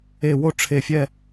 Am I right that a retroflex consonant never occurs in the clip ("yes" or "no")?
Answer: no